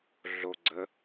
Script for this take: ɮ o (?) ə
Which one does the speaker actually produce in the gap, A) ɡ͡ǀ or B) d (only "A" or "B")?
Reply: A